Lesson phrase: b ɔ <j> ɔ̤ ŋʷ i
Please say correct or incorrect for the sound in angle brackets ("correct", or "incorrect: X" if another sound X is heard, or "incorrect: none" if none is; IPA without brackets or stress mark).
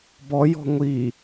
correct